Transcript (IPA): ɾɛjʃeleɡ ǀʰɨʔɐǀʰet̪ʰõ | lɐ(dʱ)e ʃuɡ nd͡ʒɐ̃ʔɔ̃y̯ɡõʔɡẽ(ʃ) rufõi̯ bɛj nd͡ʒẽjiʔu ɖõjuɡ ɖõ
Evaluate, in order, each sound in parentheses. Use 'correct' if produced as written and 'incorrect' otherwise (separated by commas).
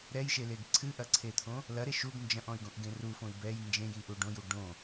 incorrect, incorrect